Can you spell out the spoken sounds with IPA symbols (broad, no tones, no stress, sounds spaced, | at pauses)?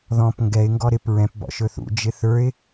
ð ɔ̃ p ŋ ɡ ɛ ɪ̯ ŋ ɡ ɔ ɾ ɪ p ɹ ɛ̃ p b ɔ̰ ʃ ɵ θ ṵ d͡ʒ ɪ θ ə˞ ɪ̯